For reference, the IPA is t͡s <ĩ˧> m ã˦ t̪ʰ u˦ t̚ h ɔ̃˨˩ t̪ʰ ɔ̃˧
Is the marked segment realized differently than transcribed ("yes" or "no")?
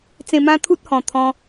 yes